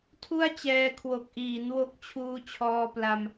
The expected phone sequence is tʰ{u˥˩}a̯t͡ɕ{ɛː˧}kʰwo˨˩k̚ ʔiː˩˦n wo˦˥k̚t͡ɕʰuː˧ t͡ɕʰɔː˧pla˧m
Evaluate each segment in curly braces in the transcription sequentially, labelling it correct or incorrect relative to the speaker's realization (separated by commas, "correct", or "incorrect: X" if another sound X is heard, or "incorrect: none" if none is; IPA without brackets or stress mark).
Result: correct, correct